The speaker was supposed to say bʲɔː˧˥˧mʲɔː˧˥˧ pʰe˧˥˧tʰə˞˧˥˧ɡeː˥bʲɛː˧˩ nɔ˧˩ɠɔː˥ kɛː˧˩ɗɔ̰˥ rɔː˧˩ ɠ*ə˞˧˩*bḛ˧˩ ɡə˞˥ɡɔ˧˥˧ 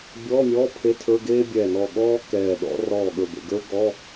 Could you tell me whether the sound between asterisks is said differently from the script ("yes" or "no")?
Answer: no